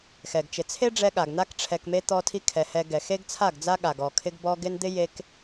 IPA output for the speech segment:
x ɛ˨ ɡ t͡ʃ ɪ˨ t͡sʰ e˦ ɖ͡ʐ ɛ˧ ɠ a˨ ɡ n̪ a˦ k ʈ͡ʂʰ ɛ˨ k m e˧ t̪ ɔ˦ tʰ i˦ kʰ ɛ˨ h ɛ˧ ɡ ɛ˨ x e˦ ɡ t͡sʰ a˦˨ ɡ d͡z a˦ ɠ a˧ ɡ ɔ˧ kʰ ɪ˧ ɡ b ɔ˧ ɡ ɪ˧ n d̪ ɪ˦ j e˧ k

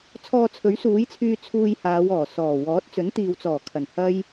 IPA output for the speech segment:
t͡sʰ ɔː˧ t͡sʰ ɵ˨˥ ɥ s uː˨˥ j t͡sʰ yː˧ t͡sʰ uː˧ j h aː˨˧ w ɔː˨˩ s ɔː˨˩ w ɔː˨˥ t̚ t͡s ɵ˨˥ n t̪ iː˨ w t͡s ɔː˨˩ kʰ ɐ˨˩ n h ɐ˥ j

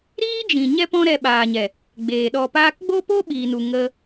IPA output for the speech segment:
ɾ iː˦ d͡ʒ ĩ˨ ɲ ɛ˦ p ɔ̃˦ ɾ ɛ˧ ɓ aː˨ ɲ ɛ˨ | ɡ͡b eː˨ ɗ ɔ˨ p aː˧ k ɡ͡b o˦ p o˦ ɓ iː˨ n u˨ ŋ ə˧

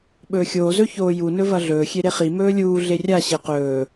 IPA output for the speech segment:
ɓ ɵː xʲ oː z ɵ ç oː j u n ɵ v ɐ ɮ ɵː xʲ e ɾ e χ i m ɵː lʲ uː ɮ e rʲ a ɕ e q ɵː

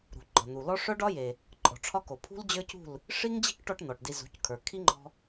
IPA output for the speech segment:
ɾ ṳ˨ ɡ͡ǃ ɒ˨ n̪ u˨ l ɔ˦ ʂ œ˦ ɖ ɒ˦ j e˨ | ǃʼ ɔ̤˨ ʈ͡ʂʰ ɒ˦ k o˨ pʰ ṳ˦ l d͡ʑ ə˞˦ c ṳ˦˨ l | ʂ i˦ ŋ d͡ʑ i̤˦ k ʈ ɔ˧ ʈ n̪ ɔ˨ ʈ d i˧ z ṳ˨˦ c kʰ ə˞˨ kʰ i˦ ŋ͡ǃ ɔ̤˧

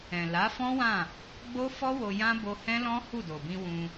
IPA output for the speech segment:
ɛ̃˨ l a˨˦ f ɔ̃˦ w ã˦˨ | ɡ͡b o˦ f ɔ˦ w o˧ j ã˦ b o˧ h ɛ̃˦ l ɔ̃˦ h u˦˨ d o˨ b ĩ˧ w ũ˧

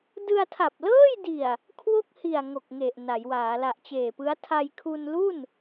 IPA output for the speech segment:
d ɯ˧ a̯ tʰ a˨˩ p̚ l ɤː˥˩ j d i˨˩ a̯ | kʰ w o˥˩ k̚ h i˨˩ a̯ ŋ o˨˩ k̚ ŋ e˨˩ ʔ n a˩˦ j w aː˩˦ l a˨˩ ʔ t͡ɕ eː˨˩ p ɯ˦˥ a̯ tʰ a˧ j kʰ u˧ n l u˥˩ n

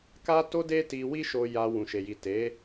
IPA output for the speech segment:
k a˦ t o˦ d e˦ t i˧ w i˦ ʃ o˧ j a˧ w ũ˨ ʃ e˨ j i˨ t e˨˦

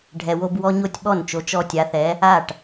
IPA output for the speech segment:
ɖʱ ɛ˨ w o˦ b w ɔ˦ ɲ o˥˩ tʲ ɓ ɔ˥˩ n t͡ʃ o˨˥ t͡ʃ ɔ˦ tʲ a˨˥ θ ɛ˨˥ | a˥˩ ʈ

